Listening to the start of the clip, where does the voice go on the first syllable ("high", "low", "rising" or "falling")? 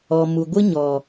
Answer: low